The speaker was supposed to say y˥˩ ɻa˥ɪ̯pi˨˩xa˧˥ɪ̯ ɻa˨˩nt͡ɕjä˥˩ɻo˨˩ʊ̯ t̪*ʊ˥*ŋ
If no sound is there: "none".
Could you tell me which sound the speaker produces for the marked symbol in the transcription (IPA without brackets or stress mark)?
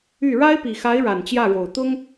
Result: ʊ˥